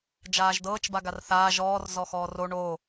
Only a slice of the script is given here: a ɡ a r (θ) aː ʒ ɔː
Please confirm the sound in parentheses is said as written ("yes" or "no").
yes